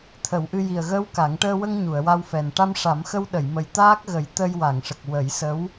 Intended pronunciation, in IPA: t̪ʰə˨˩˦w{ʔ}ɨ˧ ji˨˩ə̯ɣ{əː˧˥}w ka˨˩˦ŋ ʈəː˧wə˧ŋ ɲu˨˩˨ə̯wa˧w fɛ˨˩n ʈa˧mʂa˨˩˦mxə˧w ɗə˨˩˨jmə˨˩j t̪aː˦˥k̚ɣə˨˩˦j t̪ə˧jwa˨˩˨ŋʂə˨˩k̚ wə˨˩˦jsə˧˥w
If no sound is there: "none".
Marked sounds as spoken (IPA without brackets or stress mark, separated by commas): ʔ, əː˧˥